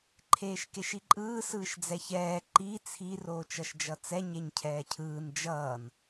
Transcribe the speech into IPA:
ǃʰ eː ʃ k e ʃ i ǃʼ ɯː s ɯː ʃ d͡z ɛ ç ɛː ǃ i t͡sʰ i r oː t͡ʃ ʌ ʃ d͡ʒ ʌ t͡s ɛ ɲ e ɲ cʰ ɛː cʰ ɯː n d͡ʒ ʌː n

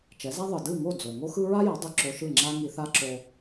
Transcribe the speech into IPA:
t͡ʃ ɛ˩˥ z a˥ ðˤ ɯ˩ d ɯ˥˩ ŋ o˥˩ d͡z o˩ ŋ o˥ x ɯ˥ ɹ a˥ j ʌ˩˥ dˤ ɯ˧ ǁ o˧ ʃ ɯ˥˩ ŋ͡ǁ a˥ ŋ i˧ θ a˥ ǁ o˧

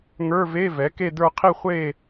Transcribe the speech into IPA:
ŋ ə˞˧˥˧ v e˧˥˧ v ɛ˩˥ k e˥˧ d ə˞˥˧ qʰ i˥˧ χʷ e˥˧

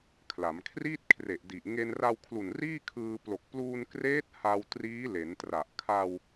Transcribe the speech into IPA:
kʰ l a˩˦ m kʰ r iː˥˩ t̚ kʰ r e˨˩ ʔ d i˨˩ ʔ ŋ e˧ n r a˧ w kʰ l u˨˩ n r iː˥˩ kʰ ɯː˧ p l o˨˩ k̚ p l uː˧ n k r eː˦˥ t̚ h a˧ w t r iː˦˥ l e˩˦ n t r a˨˩ ʔ kʰ a˧ w

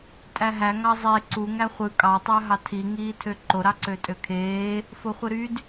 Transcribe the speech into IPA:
tʼ æ ɦ æ ŋ ɑ zˤ e ǀ u ŋ æ χʷ ɯ kʼ ɑ tˤ ø ɦ ɑ tʰ i ŋ iː tʰ ø ǃ o ɾ ɑ ǀ ø tʼ ø kʰ eː | f o χʷ ɯ ɾ y d

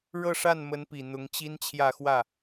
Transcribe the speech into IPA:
ɻ ɤ˥˧ ʂ a˥˩ n m ə˧˥ n p i˨˩ n̪ ʊ˧˥ ŋ t͡ɕ i˥ n t͡ɕʰ j ä˥˧ x w ä˥˩

